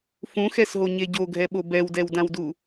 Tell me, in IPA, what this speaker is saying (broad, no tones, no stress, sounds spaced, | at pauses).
f ũ x ɛ s ɦ o ɲ e ɟ o ɡʱ ɛ ɓ o b ɛ w d ɛ w d ã w d u